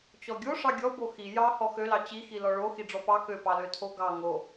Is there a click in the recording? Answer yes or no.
no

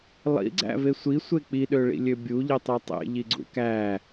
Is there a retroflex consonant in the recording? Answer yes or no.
yes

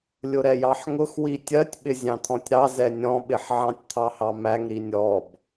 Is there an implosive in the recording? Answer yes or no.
yes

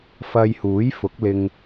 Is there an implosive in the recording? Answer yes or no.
no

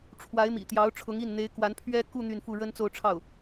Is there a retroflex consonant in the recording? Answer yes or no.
yes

